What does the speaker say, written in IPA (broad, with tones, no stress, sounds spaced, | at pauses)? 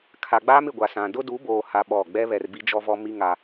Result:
kʰ a˨ ɡ͡b aː˦ m ɪ˨ ɡʷ a˨ s ã˨ d ʊ˦ d u˨˦ b oː˨ h a˦ ɓ ɔ˦˨ ɡ͡b ɛ˦ β ɛ˨ r b i˦ d͡ʒ ɔ˦ v ɔ˦ m i˦ ŋ a˦